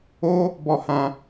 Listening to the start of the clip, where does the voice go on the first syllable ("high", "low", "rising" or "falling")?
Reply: high